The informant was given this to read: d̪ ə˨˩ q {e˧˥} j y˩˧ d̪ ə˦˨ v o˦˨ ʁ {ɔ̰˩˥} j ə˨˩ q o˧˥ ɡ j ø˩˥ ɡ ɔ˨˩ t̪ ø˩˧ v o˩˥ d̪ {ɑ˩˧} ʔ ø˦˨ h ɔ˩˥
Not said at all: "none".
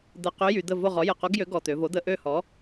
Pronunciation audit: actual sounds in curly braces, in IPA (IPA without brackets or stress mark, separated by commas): ø˧˥, ɔ˩˥, ə˩˧